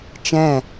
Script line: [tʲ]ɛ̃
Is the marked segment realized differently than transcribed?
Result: yes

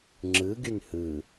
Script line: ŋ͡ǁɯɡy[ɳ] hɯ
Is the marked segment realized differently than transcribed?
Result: yes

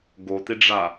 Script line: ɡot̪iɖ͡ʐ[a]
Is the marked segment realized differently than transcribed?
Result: no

